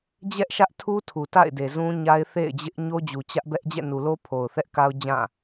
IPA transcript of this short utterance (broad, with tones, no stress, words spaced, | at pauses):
d͡ʑɛ˦ʔʃä˦ʔtʰu˦ tʰu˨ta̰˦˨ɪ̯de˨ zũ˦ɲa˦ɪ̯ θḛ˦˨ɪ̯d͡ʑɪ˦ʔ ɲo˦d͡ʑu˨ t͡ɕä˦ʔbɛ˦ʔ d͡ʑɛ̰˦˨nu˨lo˦ pʰo˨ʊ̯θɛ˦ʔka˦ʊ̯d͡ʑã˦˨